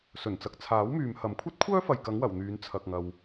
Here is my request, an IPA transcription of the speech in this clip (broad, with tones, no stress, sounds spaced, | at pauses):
s ɵ˨˩ n t͡s ɐ˨˥ k̚ t͡sʰ aː˨˥ w m yː˨ m h ɐ˨˧ m kʷʰ ɐ˥ t̚ kʷʰ œː˥ f ɐ˨ j k ɐ˨˥ ŋ w ɐ˨˩ w n̪ yː˨˧ n t͡sʰ ɐ˨ k̚ ŋ ɐ˨ w